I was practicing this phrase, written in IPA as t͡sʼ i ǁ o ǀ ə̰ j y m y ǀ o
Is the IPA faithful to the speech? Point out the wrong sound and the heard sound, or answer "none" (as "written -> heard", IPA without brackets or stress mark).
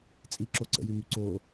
none